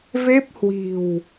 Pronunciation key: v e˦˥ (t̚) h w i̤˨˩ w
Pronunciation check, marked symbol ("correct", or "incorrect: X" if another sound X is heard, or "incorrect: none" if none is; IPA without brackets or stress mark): incorrect: p̚